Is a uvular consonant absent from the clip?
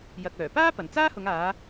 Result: yes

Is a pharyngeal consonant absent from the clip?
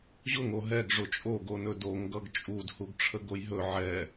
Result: no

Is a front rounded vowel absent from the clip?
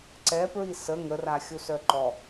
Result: no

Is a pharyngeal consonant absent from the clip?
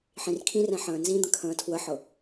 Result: no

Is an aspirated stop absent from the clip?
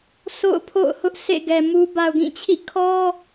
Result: no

